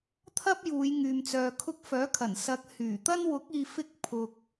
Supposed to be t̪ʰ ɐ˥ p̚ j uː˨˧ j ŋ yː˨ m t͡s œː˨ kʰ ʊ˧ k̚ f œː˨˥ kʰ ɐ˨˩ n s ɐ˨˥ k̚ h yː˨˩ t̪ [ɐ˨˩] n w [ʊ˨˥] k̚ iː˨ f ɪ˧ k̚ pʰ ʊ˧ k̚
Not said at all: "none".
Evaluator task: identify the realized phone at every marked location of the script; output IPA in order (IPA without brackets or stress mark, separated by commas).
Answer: ɐ˥, ʊ˨˥